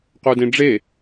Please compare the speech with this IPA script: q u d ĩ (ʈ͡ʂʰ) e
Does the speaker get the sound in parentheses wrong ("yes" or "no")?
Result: yes